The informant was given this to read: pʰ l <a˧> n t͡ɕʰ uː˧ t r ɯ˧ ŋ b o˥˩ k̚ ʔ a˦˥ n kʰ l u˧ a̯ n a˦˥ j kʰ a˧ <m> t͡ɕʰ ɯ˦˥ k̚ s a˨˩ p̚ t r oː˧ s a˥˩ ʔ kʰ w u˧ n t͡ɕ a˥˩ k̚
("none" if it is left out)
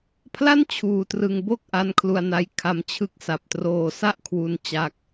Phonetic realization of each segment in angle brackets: a˥˩, m

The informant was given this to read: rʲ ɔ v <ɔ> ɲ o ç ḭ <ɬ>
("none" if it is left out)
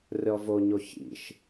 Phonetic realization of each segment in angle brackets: o, ʃ

